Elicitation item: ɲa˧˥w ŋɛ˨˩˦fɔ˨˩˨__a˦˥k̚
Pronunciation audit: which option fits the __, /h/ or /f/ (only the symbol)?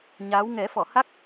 h